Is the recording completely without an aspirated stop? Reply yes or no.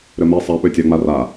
yes